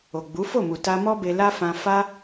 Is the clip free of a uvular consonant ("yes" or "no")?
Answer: yes